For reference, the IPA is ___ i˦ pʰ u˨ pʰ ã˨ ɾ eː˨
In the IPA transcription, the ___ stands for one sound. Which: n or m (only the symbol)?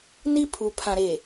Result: n